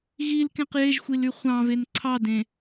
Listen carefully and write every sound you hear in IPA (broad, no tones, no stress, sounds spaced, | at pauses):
ɣ i l k ẽ q j e ʒ xʷ i l y χʷ ɑ̃ v e n ǀʰ ɑ d ẽ